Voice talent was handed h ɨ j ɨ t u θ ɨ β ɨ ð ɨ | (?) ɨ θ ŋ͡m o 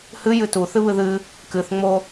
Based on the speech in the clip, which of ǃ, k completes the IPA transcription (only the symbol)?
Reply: k